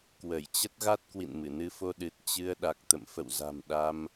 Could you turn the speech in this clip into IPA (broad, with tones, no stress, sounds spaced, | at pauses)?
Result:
k w ə˧˩ j t͡ɕ ə˦˥ t̚ ɣ a˦˥ t̚ k w ḭ˧˨ n m ɨ˧˩ n ɨ˧ f o˧ ɗ ɨ˨˩ t̚ t͡ɕ ɨ˧ ə̯ ɗ a˨˩ k̚ t̪ ə̰˧˨ m f ə̰˧˨ w z a̤˨˩ m ɗ a˧ m